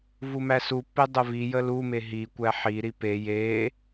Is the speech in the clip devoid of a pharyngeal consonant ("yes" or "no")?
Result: no